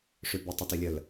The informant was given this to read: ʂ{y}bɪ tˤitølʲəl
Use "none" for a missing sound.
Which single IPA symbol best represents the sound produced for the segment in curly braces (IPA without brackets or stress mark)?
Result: y